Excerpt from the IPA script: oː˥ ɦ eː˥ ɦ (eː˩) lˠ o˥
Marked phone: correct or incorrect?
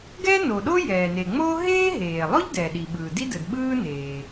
correct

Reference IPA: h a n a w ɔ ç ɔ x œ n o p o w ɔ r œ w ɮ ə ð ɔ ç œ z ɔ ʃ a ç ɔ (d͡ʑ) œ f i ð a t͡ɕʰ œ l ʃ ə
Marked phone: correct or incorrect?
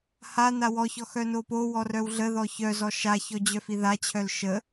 correct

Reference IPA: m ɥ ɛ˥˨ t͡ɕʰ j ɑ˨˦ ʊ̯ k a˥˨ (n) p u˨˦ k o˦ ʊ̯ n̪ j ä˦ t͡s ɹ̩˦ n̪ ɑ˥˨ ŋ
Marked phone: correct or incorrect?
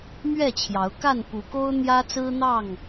correct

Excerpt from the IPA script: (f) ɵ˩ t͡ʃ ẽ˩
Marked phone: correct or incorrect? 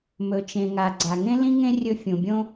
incorrect: m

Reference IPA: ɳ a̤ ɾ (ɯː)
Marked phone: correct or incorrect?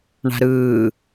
correct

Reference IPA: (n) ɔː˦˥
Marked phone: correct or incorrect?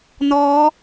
correct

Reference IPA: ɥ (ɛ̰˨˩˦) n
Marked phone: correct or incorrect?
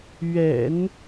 correct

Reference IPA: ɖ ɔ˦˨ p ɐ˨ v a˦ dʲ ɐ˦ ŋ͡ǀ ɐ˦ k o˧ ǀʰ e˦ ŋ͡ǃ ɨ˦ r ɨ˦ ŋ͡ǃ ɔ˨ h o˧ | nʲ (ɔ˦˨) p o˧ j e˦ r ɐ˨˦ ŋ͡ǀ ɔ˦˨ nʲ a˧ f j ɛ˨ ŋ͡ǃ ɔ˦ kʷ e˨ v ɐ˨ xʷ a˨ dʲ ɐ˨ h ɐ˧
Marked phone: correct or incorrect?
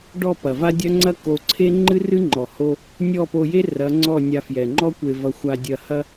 correct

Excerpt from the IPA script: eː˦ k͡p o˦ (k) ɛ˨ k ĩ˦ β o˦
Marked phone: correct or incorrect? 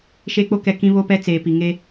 correct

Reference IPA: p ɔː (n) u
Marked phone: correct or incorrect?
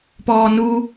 correct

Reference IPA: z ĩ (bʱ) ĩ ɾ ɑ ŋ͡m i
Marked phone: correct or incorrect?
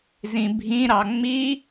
correct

